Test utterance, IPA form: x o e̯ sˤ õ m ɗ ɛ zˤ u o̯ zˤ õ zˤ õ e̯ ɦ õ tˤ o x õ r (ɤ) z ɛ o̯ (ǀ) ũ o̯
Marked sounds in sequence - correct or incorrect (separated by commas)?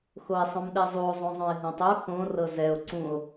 correct, correct